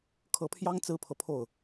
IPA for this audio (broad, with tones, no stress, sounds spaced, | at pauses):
kʰ ɤ˧˥ pʰ j ɑ˥ ŋ t͡s ɹ̩˥ pʰ ɤ˨ pʰ o˥˩ ʊ̯